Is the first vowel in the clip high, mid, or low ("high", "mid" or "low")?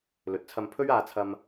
mid